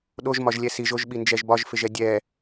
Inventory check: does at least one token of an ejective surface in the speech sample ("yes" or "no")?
no